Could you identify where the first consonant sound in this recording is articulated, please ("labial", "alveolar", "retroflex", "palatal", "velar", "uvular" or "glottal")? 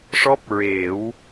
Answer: retroflex